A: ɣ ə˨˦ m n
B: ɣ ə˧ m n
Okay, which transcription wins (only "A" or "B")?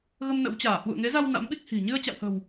B